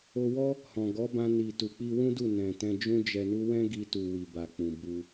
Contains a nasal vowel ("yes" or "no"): yes